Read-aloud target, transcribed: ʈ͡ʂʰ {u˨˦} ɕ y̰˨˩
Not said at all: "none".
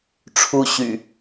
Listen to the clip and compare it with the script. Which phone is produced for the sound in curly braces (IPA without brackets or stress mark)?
u˦